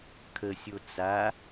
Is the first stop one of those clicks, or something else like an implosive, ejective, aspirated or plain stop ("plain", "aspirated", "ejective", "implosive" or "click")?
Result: aspirated